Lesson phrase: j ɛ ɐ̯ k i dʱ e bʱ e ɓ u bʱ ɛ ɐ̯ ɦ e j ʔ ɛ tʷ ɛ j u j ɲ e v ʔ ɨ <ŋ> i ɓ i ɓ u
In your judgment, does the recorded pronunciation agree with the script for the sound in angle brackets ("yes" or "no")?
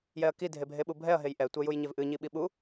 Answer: no